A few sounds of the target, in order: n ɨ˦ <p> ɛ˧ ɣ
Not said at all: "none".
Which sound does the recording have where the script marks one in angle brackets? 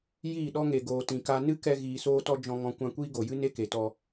k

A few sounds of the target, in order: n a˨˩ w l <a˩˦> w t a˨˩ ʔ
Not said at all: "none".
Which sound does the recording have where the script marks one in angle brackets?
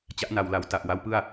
a˩˦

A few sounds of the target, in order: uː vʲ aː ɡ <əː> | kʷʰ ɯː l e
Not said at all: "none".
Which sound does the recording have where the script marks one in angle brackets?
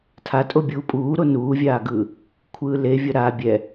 ɯː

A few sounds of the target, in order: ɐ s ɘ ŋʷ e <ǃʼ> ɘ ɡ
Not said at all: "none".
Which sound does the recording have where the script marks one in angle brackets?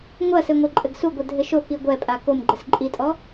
ǃʼ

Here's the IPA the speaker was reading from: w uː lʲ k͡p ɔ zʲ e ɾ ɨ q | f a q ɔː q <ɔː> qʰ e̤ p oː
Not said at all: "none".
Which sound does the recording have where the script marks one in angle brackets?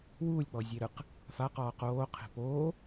oː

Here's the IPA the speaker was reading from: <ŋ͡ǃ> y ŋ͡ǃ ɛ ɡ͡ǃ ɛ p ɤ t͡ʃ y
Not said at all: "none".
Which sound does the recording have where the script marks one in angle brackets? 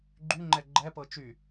ɡ͡ǃ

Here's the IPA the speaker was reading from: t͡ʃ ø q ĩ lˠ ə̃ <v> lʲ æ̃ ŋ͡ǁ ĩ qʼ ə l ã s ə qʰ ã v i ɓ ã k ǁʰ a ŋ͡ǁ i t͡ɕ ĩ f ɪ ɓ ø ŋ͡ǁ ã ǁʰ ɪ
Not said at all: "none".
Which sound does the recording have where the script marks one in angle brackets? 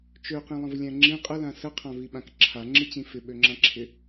v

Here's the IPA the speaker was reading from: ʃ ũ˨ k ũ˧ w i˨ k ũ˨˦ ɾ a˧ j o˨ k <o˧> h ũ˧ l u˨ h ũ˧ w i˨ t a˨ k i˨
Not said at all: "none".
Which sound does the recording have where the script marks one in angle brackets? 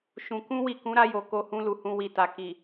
o˧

